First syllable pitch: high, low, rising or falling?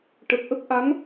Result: low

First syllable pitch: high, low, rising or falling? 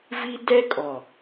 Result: high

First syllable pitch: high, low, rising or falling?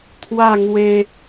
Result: falling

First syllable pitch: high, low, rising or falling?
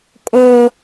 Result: high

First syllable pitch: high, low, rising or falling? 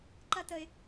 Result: high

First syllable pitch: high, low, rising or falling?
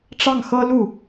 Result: falling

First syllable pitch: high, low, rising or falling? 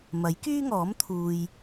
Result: rising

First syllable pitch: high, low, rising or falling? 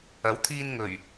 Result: rising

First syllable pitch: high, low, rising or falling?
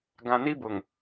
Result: low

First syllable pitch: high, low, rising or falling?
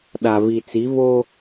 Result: low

